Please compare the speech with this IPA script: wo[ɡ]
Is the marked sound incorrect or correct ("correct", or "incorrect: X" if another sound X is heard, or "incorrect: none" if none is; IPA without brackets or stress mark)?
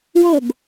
correct